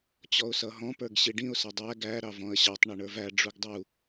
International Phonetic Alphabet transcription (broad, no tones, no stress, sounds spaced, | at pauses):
t͡ɕ ɔ ʊ̯ s ʌ ɦ ɔ̃ p ə˞ ɡ ɕ i ɖ ĩ ʊ̯ s ʌ dˤ æ ɡ æ ɾ ɑ v ɔ̃ ə̯ ɕ ɑ tˤ ɳ ʌ ɳ ə˞ v æ ɖ͡ʐ u ɡ dˤ u